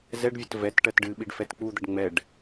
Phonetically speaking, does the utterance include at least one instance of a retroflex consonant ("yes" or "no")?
yes